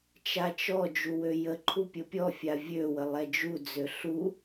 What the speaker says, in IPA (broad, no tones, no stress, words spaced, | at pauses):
t͡ʃat͡ʃɔ d͡ʒuwøjə ǃʰupʲəpʲɔ fʲavʲø wəlˠɛd͡ʒu d͡zøɬu